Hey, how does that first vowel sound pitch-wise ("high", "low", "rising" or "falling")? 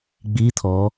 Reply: rising